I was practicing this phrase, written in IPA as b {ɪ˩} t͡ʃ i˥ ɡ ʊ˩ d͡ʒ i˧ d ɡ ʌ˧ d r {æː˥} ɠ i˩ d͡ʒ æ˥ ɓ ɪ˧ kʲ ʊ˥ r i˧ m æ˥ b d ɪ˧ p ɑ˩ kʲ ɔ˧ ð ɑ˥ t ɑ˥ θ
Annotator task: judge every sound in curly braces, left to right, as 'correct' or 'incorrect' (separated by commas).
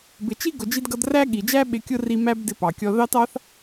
correct, incorrect